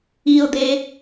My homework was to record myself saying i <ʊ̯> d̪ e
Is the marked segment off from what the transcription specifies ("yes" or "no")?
no